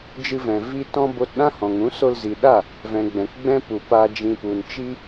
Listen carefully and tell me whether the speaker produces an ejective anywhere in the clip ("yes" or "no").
no